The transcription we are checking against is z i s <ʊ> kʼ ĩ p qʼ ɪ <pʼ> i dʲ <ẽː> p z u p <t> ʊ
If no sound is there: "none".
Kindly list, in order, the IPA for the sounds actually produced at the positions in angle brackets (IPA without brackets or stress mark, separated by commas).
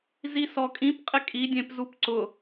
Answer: ɔ, kʼ, ẽ, ǀ